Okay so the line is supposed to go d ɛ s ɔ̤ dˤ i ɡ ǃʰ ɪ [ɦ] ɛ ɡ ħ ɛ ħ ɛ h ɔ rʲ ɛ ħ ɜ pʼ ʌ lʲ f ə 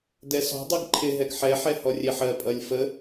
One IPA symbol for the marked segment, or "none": ɦ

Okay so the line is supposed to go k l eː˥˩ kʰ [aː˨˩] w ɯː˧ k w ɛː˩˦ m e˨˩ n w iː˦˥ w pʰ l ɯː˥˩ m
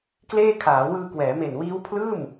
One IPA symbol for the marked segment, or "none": aː˩˦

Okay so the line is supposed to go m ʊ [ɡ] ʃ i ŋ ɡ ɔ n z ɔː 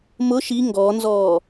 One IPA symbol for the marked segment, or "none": none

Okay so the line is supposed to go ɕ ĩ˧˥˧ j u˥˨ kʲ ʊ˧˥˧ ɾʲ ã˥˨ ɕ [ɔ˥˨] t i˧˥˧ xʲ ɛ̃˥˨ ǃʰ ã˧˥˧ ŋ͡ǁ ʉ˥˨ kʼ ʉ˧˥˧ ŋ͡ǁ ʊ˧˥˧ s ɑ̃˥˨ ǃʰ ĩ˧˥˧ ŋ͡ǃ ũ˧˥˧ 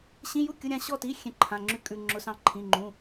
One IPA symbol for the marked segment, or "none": ɔ˥˨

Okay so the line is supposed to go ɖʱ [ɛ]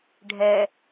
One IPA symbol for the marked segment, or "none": ɛ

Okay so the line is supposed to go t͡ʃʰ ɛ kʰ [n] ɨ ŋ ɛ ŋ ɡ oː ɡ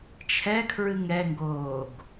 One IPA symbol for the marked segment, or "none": ɹ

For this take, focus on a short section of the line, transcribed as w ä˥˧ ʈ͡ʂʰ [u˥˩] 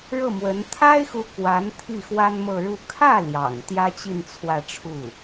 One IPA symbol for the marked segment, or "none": u˥˩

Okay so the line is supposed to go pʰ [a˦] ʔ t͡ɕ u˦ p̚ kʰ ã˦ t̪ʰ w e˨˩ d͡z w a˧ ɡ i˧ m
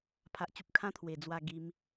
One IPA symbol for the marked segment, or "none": a˦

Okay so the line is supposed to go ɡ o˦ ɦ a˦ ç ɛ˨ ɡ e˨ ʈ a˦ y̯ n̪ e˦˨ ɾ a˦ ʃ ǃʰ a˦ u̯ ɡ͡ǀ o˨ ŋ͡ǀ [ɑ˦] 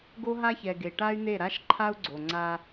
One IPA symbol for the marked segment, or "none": a˦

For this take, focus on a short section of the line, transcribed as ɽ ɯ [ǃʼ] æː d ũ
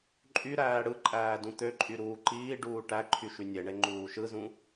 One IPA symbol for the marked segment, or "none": ǃʼ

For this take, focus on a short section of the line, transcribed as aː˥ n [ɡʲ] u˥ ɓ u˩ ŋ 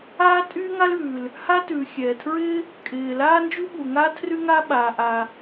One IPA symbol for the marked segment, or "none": d͡ʒ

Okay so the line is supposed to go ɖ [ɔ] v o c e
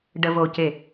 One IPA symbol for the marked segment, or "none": ə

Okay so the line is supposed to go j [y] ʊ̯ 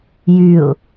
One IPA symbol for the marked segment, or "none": y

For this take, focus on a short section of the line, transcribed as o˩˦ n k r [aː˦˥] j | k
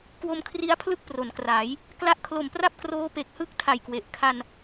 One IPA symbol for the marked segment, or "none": aː˩˦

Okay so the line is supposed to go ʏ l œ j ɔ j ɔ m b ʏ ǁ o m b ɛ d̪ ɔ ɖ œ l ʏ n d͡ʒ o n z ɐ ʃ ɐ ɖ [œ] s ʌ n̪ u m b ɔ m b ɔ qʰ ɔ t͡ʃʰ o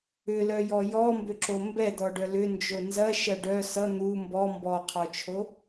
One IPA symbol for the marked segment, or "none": œ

